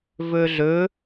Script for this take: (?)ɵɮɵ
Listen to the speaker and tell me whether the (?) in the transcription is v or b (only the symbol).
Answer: v